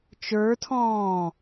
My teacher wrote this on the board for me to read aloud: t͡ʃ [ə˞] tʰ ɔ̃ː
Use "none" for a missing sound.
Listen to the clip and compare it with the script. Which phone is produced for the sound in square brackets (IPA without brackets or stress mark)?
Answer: ə˞